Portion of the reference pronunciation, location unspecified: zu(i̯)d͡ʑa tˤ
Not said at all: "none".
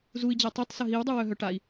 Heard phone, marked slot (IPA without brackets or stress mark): i̯